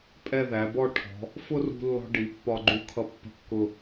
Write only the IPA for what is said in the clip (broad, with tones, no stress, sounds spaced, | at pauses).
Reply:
pʼ ɛ˥˧ ð æ˩˧ b ɔ˥˧ ʈʰ ɔ̤˩˧ | f ʊ˥ r ṳ˧ lː ɔ̤˥ ɖ i˩˧ pː ɒ˧ ɡ͡ǃ u˧˩ kʰ ʌ˧ pː ə̤˧ kː ʊ˧˩